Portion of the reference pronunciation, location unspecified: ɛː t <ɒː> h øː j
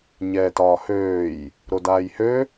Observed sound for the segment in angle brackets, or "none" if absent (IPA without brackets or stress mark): ɒː